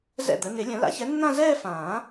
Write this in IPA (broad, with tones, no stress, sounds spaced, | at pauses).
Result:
z ɛ̰˥˩ d̪ ə˨˥ n ɪ˨˩˦ lʲ ə̃˨˩˦ l a̰˨˥ ç ɛ˨˥ nː ã˥˧ z ɛː˥˧ f ãː˨˩˦